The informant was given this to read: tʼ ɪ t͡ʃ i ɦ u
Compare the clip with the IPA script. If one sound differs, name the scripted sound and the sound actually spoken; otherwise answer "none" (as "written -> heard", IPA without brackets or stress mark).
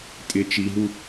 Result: none